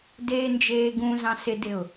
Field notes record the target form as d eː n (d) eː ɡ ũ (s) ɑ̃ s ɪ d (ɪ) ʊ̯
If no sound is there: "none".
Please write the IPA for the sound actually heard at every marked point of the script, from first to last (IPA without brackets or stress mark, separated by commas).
d͡ʒ, z, ɪ